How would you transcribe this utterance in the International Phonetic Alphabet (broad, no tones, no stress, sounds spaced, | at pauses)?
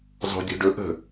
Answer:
zˤ o̤ dʲ o̤ ɖ ɵ ʔ ə̤